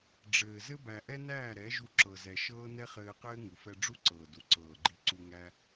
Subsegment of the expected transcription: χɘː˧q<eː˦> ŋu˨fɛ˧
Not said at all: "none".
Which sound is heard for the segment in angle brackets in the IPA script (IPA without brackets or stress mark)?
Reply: ɘː˦